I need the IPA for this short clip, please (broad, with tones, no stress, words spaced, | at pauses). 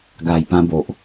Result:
ɡa˨˩jpã˧ bo˨ʔ